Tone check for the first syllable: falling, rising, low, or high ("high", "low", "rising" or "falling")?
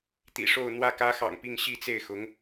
low